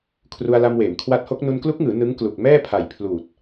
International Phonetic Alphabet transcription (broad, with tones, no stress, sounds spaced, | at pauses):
kʰ r u˧ a̯ l a˧ m w eː˩˦ m kʰ w a˦˥ t̚ h o˦˥ k̚ n u˧ n k l u˦˥ k̚ ŋ ɯː˩˦ n ɯ˦˥ ŋ k l u˨˩ k̚ m ɛː˥˩ pʰ a˨˩ j pʰ l uː˨˩ t̚